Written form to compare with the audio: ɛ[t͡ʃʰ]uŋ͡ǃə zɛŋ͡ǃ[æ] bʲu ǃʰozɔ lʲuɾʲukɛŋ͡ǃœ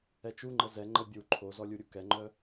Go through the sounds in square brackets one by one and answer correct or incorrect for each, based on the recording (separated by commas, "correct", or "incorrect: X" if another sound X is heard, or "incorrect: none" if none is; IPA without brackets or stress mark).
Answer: incorrect: t͡ʃ, incorrect: ə